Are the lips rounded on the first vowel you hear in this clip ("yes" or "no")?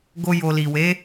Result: yes